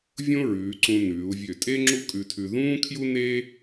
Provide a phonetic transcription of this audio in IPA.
vʲõ˥ɹʉː˩˧ǀũ˧ nʉː˩˧u̯vʲø˧˩tʼe˥ ŋ͡ǁu˥kʼʉ˧tʰʉ˧ ðũː˥kʰju˥neː˥

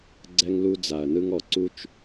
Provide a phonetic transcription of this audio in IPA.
ɡ͡ǀɛ˧ŋlu˧d͡za˨ɐ̯nɯ˧ŋ ɔ˨ǀu˦t͡ʃ

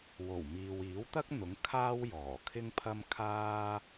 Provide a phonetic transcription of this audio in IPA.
wo˨˩w miː˨w iː˨˥wt̪ɐ˥k̚n̪ʊ˨˥ŋ kʰaː˥wjɔː˨˩ kʰɪ˥ŋpʰɐ˥m kʰaː˥

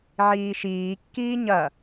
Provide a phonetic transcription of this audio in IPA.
ʕiːʃiːkːiː ɲɐ

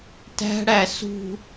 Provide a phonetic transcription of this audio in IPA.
tæ̤ɽæ sṳ

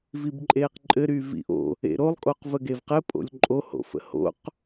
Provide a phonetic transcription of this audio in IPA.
vibǃʼeːqǃʼɘ ɾyːvḭʔo̰ | ḛɾolˠ kʼoqvəɡevqɘ pʼo̰lʲǃʼoho̰ fə̰ho̰q

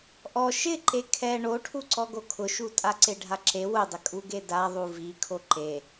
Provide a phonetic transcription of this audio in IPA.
ʔɔ ʃɪ ǃekʰɛ ɳoʈʰu ǀɔɡokʰʊʃu tʼaǀeɖʱaǁe wʊdˤɪ kʼuɡeda ðˤuvi kʰoǃe

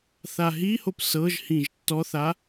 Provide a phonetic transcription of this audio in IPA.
θaɦihop sɤʒhĩʒ tːɔθa

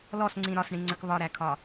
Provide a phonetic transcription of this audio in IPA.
lɔsŋ͡ǀĩ ɾɒsɳĩŋ͡ǀək βɒɾækʰɒ

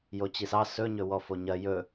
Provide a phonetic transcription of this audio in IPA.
jot͡ɕisɑ sɵ ɲɵwɔfoɲɜ jɵ

